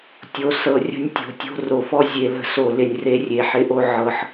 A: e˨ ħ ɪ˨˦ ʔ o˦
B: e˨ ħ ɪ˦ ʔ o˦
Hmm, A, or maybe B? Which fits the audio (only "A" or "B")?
B